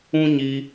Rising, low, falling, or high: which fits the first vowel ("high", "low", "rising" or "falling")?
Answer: high